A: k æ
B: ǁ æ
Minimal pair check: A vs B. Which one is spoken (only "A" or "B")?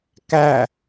A